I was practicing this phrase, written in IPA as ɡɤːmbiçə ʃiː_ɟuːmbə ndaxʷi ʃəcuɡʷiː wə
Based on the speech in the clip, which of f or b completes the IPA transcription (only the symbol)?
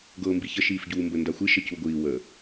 f